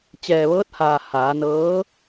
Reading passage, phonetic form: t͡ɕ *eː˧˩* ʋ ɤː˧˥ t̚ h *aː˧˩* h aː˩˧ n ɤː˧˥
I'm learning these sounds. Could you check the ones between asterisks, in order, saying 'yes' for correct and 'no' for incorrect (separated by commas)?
no, yes